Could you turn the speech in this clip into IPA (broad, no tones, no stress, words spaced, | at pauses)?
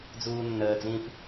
d͡zuːnːəːd͡zĩp